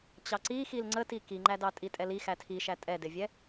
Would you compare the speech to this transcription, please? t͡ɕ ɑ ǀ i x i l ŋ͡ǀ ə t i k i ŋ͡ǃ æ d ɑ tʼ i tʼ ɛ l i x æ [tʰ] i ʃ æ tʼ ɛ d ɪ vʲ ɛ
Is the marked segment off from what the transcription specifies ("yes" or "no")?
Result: no